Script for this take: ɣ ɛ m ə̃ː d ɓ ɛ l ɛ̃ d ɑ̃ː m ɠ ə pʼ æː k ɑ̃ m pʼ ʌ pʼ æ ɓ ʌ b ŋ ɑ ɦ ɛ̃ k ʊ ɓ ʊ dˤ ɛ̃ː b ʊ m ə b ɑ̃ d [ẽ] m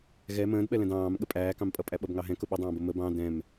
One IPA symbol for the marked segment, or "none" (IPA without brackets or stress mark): ɛ̃